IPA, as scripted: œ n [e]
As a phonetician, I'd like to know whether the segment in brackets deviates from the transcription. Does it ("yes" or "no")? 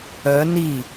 yes